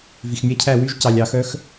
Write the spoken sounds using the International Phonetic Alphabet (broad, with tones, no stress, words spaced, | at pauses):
vi˩xmʲæ˥cʰæ˥˨ wy˥ʒcɑ˩lʲɑ˨˩˦xœ˥x